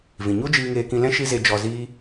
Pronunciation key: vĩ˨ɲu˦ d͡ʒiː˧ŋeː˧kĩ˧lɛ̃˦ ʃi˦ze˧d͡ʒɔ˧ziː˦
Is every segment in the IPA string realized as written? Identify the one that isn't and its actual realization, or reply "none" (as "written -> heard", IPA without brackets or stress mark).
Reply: none